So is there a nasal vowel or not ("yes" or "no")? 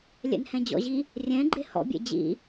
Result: yes